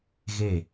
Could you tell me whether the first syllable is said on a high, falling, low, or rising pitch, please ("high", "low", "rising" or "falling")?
falling